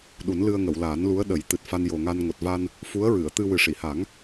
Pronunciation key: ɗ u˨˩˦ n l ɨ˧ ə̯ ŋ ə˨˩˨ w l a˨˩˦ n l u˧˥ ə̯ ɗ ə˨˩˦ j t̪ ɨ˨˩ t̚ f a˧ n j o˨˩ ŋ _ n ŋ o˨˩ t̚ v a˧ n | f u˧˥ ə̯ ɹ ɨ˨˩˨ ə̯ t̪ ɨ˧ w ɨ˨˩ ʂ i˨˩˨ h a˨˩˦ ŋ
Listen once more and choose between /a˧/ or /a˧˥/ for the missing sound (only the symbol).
a˧